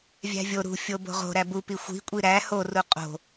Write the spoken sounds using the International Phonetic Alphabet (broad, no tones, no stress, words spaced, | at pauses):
vʲæ̤vʲo ɾṳfʲo bo̤ʁo̤ ɾæbupi xʷi̤kʷʼi ɾæ horu qʼo̤